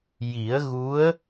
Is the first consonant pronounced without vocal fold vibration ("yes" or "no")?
no